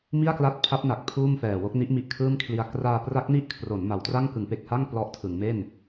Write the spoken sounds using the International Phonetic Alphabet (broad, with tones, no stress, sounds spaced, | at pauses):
m i˥˩ a̯ k l a˦˥ t̚ pʰ a˦˥ p̚ n a˨˩ k̚ pʰ uː˥˩ m f ɛː˨˩ w o˥˩ k̚ n i˦˥ ʔ m i˨˩ ʔ kʰ ɯː˥˩ m kʰ l i˧ a̯ k r aː˧ p r a˦˥ k̚ n i˦˥ ʔ kʰ r o˩˦ n m a˩˦ w t r a˥˩ ŋ k ɯ˩˦ ŋ p e˨˩ k̚ h a˥˩ ŋ p l ɔ˦˥ ʔ tʰ ɯ˩˦ ŋ m e˥˩ n